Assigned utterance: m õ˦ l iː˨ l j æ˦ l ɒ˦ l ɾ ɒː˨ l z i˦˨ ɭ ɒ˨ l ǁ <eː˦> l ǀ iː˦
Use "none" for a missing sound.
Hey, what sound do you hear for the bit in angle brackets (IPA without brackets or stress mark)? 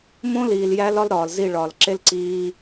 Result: e˦